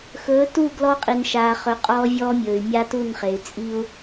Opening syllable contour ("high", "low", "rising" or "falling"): rising